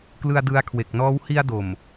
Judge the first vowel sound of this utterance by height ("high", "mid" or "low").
high